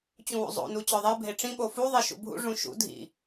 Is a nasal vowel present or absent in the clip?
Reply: present